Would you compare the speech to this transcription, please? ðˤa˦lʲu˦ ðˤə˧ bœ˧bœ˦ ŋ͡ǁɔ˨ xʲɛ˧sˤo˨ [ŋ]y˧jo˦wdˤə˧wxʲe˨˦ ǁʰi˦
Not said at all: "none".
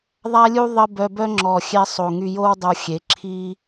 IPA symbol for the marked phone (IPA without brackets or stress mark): ŋ